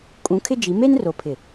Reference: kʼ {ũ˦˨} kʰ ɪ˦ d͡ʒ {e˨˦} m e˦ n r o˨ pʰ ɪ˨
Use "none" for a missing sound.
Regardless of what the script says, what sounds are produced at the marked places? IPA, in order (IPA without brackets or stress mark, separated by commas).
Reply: ũ˨˦, i˨˦